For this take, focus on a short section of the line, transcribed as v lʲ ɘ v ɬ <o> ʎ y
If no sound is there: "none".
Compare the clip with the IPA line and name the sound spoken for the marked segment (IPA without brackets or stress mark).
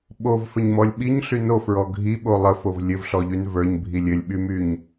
ɔ